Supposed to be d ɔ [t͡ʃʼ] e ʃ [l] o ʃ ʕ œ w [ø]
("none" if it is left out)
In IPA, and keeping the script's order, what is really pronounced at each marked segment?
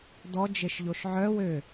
d͡ʒ, ʎ, ø

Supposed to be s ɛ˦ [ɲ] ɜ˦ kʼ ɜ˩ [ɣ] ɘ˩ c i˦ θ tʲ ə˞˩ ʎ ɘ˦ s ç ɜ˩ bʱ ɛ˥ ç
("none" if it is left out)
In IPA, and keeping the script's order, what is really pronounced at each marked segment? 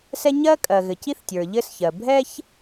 ɲ, ɣ

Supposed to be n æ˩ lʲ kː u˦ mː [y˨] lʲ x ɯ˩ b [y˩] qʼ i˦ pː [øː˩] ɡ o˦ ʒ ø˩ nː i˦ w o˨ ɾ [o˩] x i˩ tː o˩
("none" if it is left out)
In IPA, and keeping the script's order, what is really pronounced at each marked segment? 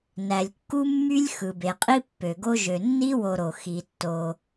y˦, e˩, ø˩, o˩

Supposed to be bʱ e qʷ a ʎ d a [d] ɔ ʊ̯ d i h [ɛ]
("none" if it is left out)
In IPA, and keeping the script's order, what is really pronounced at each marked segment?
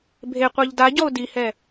ɟ, ɛ

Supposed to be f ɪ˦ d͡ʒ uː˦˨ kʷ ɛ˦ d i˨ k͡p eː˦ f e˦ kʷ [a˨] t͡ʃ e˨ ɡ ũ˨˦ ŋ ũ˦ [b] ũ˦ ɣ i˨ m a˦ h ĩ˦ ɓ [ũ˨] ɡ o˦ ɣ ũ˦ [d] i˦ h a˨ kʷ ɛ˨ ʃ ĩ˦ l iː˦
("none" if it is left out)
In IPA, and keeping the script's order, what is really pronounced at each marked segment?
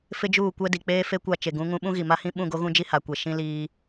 a˦˨, ɓ, ũ˦˨, d͡ʒ

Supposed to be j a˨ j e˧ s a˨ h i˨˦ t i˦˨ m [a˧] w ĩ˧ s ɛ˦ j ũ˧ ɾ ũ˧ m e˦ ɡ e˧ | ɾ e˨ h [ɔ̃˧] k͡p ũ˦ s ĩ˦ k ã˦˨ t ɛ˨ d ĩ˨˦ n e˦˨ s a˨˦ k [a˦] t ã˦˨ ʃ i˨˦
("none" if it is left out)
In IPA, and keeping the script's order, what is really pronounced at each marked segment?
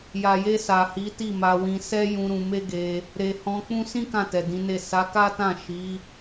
a˧, ɔ̃˧, a˦

